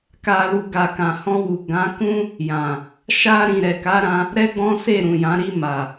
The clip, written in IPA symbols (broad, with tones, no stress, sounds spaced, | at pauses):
k a˨ l u˨ ɡ a˨ k ã˨ h ɔ̃˧ w u˨ ɡ ã˨˦ k ũ˦ | j ã˨ | ʃ a˧ ɾ ĩ˨ ɾ ɛ˨ k a˨˦ ɾ ã˧ | ɾ ɛ˦ ɡ͡b ɔ̃˦ s e˦˨ ɾ ũ˨ j ã˨˦ ɾ i˧ m a˨